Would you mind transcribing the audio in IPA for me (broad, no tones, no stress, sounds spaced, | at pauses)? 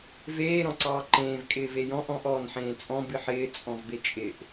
v eː ɾ ɔ̃ ǀ ɑː ǃ ẽː v kʼ ɪː v e j ɔ̃ ʔ ɔ̃ ʔ ɔː n ħ ẽː t͡sʼ ɔ̃ b ɨ ħ ɪː t͡sʼ ɔ̃ v b e t͡ʃʼ ɪ ʔ